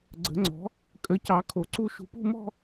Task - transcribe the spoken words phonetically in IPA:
ɡ͡ǀə̤˨˥ŋ͡ǀɔ̤˨˥ | kʼə˨˥cɑ˨˥ kʰo˨˥ǀu˥˧ ʃṳ˧pṳ˥˧ mɔ̤˥˧

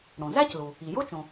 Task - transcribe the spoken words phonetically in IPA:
ɽõ˩zæ˥clu˩ | i˩jo˥t͡ʃõ˩

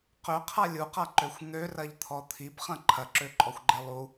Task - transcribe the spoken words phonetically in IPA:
qøqʰa lʲuqaǃøxʷ n̪ørɐʎt̪ʰɔ t̪ʰibχɐ̃ ǃʰɐǁøǃʼɔxʷɡ͡ǃe lˠu

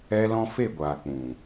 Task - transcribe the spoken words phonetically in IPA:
ɛ˦lɔ̃˦ fe˦˨ɡʷaː˨ k͡pũ˨

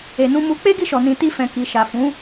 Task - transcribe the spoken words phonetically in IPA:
e˨nũ˧mu˧ k͡pe˦ɡi˦˨ʃɔ˨nĩ˨ ti˧fɛ̃˨ ki˨ʃa˨ fũ˨˦

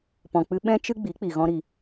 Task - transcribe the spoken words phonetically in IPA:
pɔ̃˨k͡pɨ˧ ɓɛ̃˦ t͡ʃɨ˦ ɡ͡bi˨˦ k͡pi˨ɣɔ̃˦ɾi˧

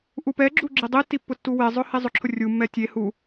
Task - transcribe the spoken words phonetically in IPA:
ʔupɛɡ͡ǁu ɡ͡ǁidˤitːi pːʊtːuwezˤʊ hizˤʊǁʰʊ rʲumːɛ tʲe hu

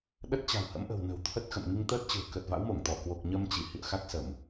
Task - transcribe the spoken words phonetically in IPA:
ɗə˦˥t̚t͡ɕa̤˨˩whə̰˧˥m ʔə̤˨˩w nə̤˨˩wt̪ʰə˦˥t̚xə̰˧˨m ŋi˧ŋt̪əː˦˥t̚t͡ɕɨ̤˨˩ə̯ kəː˨˩t̚va̰˧˥wmo˧˩ŋt̪ɔ˧˩ kwo˨˩k̚ɲəː˧m t͡ɕi˧˩ hḭ˧˨ə̯ xa˦˥k̚ sə˧˩˨m

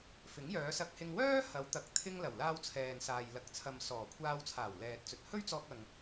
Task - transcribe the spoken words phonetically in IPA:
fɪ˨˥ŋjœː˨˧sɐ˧k̚hɪ˧ŋ wœː˥hɐ˨˧wt̪ɐ˨˥k̚t̪ʰɪ˧ŋ lɐ˨˩wlaː˧wt͡sʰɛː˨nsaː˨j lɐ˨k̚t͡sʰɐ˨m sɔː˨˩kʷʰaː˧wt͡sʰaː˨˩w lɛː˨t̚ t͡sɵ˨t̚hɵ˥ɥt͡sɔː˧k̚ɐ˨ŋ

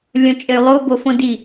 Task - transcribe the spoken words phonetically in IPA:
lʲõt͡ʃʼɘy̯lˠo bofõdi

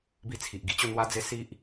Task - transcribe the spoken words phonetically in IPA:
bi˧t͡sʰi˨ʔ ɡi˧t͡ɕo˥˧n̪wa˦d͡ze˦ si˦ʔ

